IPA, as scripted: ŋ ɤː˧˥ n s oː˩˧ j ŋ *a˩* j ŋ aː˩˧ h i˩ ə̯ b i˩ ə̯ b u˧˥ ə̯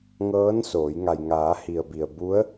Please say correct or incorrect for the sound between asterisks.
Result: correct